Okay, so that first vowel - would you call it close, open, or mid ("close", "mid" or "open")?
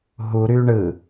close